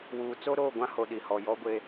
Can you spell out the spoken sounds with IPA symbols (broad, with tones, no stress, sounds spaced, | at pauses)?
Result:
w uː˨ t͡s o˦ ɾ oː˦˨ ɡʷ ã˦ h o˨ ɗ i˨ h ɔ˨ j ɔ˦ ɡʷ e˦